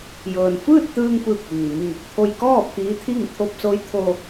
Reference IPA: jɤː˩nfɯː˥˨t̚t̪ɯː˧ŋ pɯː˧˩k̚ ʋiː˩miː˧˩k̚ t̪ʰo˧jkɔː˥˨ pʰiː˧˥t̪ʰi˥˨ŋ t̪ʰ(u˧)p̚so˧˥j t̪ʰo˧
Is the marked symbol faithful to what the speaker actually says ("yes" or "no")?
no